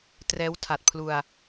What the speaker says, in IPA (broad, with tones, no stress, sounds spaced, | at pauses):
t r ɛː˦˥ w tʰ a˨˩ t̚ pʰ l u˧ a̯